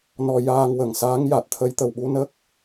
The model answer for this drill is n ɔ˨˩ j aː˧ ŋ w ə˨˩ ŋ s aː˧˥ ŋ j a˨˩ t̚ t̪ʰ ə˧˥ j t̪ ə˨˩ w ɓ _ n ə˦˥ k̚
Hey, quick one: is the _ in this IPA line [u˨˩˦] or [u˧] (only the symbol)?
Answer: u˧